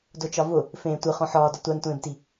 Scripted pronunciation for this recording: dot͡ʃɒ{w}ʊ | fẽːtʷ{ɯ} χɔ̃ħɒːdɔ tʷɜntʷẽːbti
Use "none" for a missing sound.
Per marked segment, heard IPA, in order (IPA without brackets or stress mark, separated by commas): v, ɯ